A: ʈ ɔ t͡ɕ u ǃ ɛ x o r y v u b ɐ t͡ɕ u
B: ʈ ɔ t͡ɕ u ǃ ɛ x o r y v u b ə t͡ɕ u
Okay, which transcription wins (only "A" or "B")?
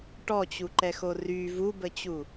B